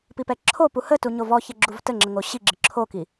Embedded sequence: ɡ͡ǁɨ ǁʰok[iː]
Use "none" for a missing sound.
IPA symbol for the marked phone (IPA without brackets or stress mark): i